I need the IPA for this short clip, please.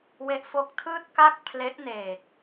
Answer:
w e˦˥ ʔ f o˦˥ k̚ tʰ ɯː˥˩ t̚ k a˥˩ k̚ pʰ l e˦˥ ʔ n eː˨˩ k̚

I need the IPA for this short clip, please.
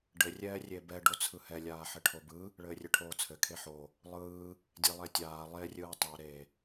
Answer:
ɖ ɘ rʲ ɛː rʲ e b ɛ ɖ o t͡sʰ ɯ h ɛ lʲ aː ħ ɘ ʈʰ o b ɯ | ɭ ɘː rʲ ɘ ʈʰ oː t͡sʰ ɘ kʰ e ħ o | lˠ ɯː | dʲ e lˠ ɛ tʲ aː lˠ e rʲ ɯː tˤ ɛ ɾ e

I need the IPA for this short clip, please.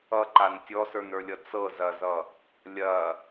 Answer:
ʌ ǃ a n tʲ ɔ s ə˞ n ə˞ lʲ ʌ t͡s ɤ z ɐ z ʌ | lʲ ɐ

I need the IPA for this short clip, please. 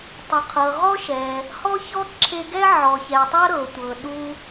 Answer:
tˤ u˩ qʰ ɤ˩ ʁ ɔ˥ ʃ ɛ˩ | h ɔ˥ ç ɔ˥ ǁʰ e˧ ɡ ɛ˥ ʕ ɔ˩ ç ɛ˩ tˤ ɤ˥ ɾ ɤ˩ tʷ ɤ˩ ɗ u˧

